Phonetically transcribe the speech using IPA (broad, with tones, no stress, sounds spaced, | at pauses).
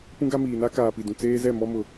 p ũ˦ ɡ a˦ m iː˨ n a˦ k aː˨ p i˨ d ũ˨ t͡s eː˦ z ɛ˦˨ m ɔ˦ m ʊ˦